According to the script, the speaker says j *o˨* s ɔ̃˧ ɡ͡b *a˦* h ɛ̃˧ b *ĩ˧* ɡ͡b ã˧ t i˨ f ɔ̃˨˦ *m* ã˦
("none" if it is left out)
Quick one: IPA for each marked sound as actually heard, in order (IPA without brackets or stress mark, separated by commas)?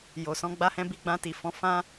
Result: o˨, a˧, i˧, f